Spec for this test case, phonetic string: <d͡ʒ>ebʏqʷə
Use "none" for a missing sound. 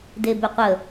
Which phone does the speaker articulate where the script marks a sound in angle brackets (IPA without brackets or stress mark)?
d